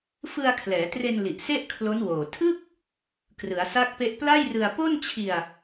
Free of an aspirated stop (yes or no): no